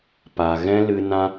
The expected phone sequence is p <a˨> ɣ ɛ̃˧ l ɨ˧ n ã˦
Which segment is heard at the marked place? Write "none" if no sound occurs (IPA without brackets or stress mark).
a˨